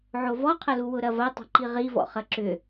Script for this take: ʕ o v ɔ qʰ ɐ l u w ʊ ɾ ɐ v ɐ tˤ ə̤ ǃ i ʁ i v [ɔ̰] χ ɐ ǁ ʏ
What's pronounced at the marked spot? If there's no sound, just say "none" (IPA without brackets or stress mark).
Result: ɔ̰